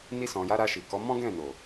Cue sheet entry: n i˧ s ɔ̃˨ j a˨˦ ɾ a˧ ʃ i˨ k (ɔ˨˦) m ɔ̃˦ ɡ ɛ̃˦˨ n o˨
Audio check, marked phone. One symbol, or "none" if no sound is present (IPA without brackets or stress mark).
ɔ˨˦